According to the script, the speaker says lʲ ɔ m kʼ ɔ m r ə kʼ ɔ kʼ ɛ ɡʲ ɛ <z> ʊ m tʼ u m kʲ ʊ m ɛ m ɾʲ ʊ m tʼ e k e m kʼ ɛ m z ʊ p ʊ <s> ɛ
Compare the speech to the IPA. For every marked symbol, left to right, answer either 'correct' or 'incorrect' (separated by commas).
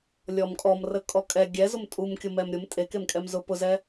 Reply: correct, incorrect